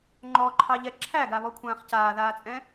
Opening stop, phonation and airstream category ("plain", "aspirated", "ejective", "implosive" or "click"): click